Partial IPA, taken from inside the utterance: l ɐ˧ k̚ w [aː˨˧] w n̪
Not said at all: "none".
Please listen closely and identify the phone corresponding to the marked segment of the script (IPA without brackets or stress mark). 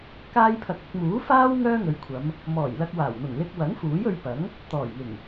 aː˨˩